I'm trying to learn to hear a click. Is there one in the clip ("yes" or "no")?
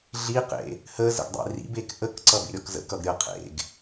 yes